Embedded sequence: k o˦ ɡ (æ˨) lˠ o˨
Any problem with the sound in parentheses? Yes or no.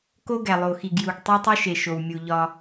no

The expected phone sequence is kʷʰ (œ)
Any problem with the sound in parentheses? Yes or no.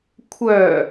no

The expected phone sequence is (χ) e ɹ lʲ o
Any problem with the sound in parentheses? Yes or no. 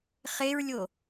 no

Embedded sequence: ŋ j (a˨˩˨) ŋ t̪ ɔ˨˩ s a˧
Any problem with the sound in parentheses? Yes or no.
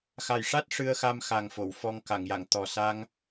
no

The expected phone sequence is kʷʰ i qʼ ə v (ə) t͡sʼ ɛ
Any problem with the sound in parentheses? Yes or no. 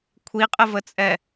no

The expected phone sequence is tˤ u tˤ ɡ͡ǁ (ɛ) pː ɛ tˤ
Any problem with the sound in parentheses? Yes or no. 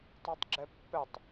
no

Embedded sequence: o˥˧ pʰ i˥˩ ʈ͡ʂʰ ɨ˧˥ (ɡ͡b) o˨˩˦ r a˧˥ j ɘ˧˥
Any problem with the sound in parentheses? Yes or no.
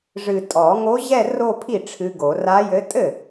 yes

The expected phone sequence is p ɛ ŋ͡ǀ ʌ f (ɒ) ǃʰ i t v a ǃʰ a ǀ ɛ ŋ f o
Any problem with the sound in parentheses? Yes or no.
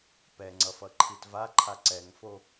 yes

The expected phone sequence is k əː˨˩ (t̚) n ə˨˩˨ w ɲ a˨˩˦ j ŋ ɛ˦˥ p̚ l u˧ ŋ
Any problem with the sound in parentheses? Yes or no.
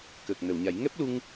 yes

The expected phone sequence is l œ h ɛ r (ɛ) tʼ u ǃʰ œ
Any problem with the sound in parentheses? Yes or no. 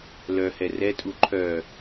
no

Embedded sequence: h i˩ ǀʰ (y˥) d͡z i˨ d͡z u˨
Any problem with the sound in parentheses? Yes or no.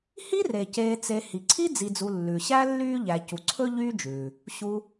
yes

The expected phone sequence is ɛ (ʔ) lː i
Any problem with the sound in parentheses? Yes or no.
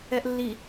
no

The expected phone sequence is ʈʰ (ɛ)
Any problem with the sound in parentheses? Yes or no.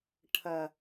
yes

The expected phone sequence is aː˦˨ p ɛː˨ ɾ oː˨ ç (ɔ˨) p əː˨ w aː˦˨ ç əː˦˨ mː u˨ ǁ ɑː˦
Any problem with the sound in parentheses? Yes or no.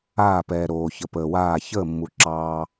yes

